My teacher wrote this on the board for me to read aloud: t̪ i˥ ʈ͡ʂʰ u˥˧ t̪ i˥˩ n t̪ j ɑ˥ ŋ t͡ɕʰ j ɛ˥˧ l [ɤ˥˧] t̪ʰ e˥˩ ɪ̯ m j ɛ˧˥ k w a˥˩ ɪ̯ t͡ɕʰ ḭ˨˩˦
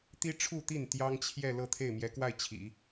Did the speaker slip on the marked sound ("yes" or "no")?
no